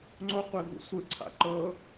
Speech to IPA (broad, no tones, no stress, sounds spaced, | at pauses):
ŋ͡ǀ o qʷ e v ṵ sʷ ɯ ǀʰ a̰ ǃ ɤ